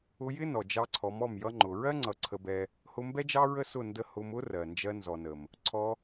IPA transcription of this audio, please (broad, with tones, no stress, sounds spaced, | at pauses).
ʊ˧ j ɪ˦ n ɔ˨ d͡ʒ ɑ˧ ǀʰ ɔ˨˦ m ɔ˦˨ m j ʌ˧ ŋ͡ǃ ʊ˨ ɹ ɜ˦ ŋ͡ǀ ʌ˨˦ ǀʰ ə˧ b ɛ˧ | h ʊ˧ m b ɛ˦ d͡ʒ ɑ˦ ɹ ə˦ s ʊ˦˨ n d ə˧ h ʊ˧ m ʊ˦ r ɜ˨ n d͡ʒ ɜ˧ n z ɔ˨ n ə˨ m | ǀʰ ɔ˧